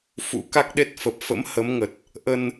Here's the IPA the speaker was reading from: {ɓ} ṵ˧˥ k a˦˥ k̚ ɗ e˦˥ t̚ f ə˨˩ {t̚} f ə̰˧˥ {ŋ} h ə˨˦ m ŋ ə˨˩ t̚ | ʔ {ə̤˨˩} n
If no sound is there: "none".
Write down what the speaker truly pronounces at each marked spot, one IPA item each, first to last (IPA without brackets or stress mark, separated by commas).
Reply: f, p̚, m, ə˧